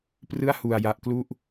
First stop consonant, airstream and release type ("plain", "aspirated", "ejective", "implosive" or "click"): plain